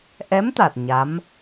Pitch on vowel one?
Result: rising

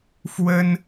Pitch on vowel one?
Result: high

